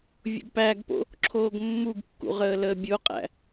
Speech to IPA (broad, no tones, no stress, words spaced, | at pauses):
vʲṵɡpæɡpo̰ | ǁʰoːɡmːuɡkːṵ ʁəːləːbʲoqʼæ̰